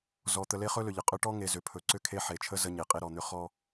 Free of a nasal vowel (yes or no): yes